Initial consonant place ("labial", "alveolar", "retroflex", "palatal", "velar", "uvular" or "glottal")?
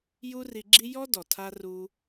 palatal